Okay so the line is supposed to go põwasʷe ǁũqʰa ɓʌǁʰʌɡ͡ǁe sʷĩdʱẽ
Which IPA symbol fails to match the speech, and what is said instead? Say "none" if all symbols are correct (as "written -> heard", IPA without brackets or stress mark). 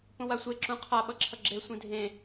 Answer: none